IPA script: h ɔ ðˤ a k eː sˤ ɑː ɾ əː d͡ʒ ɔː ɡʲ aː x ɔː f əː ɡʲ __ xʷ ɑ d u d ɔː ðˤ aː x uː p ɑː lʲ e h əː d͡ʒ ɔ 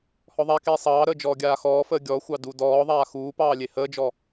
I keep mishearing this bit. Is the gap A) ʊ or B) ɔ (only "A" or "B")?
B